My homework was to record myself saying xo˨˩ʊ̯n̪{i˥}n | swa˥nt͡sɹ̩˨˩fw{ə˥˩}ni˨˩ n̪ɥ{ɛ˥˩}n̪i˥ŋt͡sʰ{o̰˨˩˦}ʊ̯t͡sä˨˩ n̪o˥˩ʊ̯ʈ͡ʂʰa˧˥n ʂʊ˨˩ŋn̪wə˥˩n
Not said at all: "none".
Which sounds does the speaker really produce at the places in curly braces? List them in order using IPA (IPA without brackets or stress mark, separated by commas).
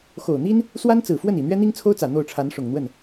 i˥, ə˥˩, ɛ˥, o˥